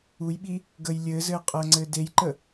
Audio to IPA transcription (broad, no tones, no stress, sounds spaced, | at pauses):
u j ɓ i | ɡ ə j lʲ ɘː z ɘː qʼ əː ŋ͡ǀ ɘː d e j ǃ ə